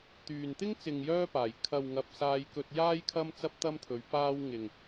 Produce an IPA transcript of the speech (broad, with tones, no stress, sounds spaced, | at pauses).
t̪ yː˨ n t̪ ɪ˥ ŋ t͡s ɪ˨ ŋ j œː˧ p aː˨˩ j kʰ ɐ˨ w ŋ ɐ˨ p̚ s aː˧ j k ɵ˧ t̚ j aː˥ j kʰ ɐ˥ m t͡s ɐ˥ p̚ t̪ ɐ˥ m t̪ʰ ɵ˨˧ ɥ p aː˧ w ŋ ɪ˨ ŋ